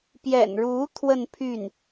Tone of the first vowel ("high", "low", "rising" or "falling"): low